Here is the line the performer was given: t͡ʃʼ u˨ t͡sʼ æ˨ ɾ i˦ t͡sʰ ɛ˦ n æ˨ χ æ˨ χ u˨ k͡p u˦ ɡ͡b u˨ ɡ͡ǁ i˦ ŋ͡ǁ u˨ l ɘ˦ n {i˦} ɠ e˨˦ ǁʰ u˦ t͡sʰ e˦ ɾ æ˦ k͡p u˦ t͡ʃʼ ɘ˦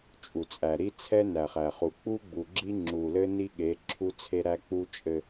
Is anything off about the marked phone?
no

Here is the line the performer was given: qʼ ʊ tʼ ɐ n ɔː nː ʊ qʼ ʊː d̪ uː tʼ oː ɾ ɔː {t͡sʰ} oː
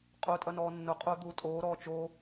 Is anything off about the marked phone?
yes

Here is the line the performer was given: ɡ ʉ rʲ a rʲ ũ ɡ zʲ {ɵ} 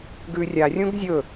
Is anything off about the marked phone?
no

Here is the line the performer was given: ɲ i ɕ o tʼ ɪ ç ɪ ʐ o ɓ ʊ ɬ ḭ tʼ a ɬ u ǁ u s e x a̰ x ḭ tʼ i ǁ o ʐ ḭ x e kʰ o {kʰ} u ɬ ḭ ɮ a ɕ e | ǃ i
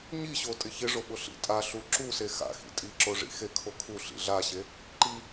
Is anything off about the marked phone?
no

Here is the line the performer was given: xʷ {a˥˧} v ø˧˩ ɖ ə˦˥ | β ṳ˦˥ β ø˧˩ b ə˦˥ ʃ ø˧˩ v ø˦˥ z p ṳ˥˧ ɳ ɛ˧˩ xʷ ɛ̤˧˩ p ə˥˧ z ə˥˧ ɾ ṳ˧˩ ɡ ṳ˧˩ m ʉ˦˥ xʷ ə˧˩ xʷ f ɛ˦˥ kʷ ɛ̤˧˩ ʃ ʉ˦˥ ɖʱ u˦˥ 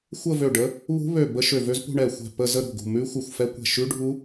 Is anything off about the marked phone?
yes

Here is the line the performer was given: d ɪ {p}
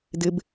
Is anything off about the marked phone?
yes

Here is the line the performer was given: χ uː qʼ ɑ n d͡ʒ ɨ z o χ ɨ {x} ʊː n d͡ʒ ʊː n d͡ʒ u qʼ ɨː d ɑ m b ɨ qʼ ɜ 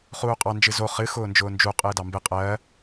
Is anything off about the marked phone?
no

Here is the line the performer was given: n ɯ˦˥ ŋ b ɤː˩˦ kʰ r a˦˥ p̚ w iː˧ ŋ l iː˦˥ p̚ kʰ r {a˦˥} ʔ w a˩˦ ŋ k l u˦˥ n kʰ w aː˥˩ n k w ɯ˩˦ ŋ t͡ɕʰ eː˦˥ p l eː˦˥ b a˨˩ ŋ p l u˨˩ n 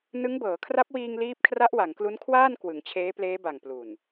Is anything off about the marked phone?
no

